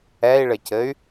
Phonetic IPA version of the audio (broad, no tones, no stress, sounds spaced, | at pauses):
ɛ i̯ ɭ ɘ c ɘ y̯